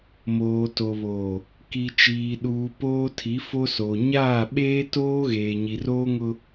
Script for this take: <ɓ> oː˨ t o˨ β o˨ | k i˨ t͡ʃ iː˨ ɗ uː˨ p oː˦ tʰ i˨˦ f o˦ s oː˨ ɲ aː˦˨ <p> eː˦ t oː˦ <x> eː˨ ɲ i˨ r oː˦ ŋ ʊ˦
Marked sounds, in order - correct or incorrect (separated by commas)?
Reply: incorrect, incorrect, incorrect